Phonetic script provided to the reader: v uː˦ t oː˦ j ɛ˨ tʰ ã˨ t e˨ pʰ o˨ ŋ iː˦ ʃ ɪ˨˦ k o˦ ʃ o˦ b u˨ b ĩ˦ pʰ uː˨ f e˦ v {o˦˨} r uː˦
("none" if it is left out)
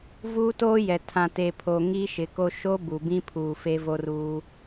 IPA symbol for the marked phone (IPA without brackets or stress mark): o˦